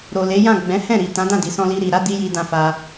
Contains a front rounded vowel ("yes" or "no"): no